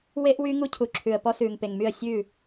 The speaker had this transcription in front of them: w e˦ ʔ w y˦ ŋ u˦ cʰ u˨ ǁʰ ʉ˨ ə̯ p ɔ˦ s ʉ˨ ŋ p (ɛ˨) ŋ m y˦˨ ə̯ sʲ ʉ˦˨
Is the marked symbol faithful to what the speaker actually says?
no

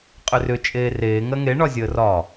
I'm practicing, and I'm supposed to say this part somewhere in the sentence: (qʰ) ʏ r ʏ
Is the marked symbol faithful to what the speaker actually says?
no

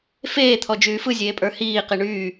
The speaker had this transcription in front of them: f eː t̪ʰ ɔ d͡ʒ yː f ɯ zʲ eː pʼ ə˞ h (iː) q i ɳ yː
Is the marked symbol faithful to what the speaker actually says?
yes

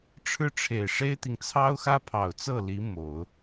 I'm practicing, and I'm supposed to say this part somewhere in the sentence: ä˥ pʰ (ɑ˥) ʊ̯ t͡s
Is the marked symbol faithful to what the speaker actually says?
no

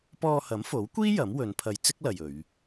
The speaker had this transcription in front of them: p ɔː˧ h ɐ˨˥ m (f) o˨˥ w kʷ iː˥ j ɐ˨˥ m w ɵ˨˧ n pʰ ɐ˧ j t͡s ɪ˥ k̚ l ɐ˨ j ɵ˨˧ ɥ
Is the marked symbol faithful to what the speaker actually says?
yes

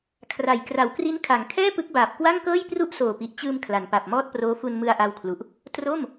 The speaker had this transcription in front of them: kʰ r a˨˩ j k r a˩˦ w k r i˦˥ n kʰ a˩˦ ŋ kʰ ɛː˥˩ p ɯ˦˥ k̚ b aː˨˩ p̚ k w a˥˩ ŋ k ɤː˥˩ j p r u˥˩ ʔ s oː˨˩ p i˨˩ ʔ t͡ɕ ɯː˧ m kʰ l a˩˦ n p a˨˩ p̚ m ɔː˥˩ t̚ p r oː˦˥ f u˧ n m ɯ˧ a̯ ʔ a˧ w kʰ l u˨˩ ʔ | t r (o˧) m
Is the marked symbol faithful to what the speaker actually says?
no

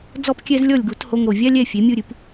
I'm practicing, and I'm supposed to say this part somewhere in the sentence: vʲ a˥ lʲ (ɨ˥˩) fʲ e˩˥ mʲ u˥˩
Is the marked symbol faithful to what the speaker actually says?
no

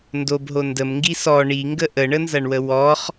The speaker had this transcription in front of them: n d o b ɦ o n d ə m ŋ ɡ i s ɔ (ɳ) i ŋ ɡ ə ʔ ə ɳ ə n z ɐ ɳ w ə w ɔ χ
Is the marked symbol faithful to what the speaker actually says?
yes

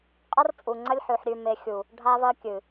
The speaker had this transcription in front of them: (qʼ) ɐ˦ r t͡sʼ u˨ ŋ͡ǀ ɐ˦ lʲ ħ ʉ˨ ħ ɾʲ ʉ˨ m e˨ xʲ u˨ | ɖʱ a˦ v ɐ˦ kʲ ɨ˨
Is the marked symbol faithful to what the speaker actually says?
yes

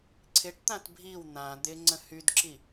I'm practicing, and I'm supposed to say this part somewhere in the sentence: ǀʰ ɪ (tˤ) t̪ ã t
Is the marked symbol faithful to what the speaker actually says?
no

